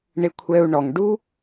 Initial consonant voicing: voiced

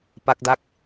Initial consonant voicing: voiceless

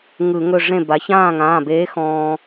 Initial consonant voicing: voiced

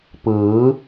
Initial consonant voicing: voiceless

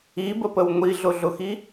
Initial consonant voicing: voiced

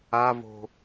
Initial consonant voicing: voiced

